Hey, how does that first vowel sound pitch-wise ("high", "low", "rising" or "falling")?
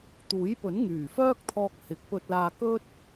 rising